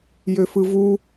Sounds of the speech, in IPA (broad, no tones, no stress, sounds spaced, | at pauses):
j ø f ɯ v u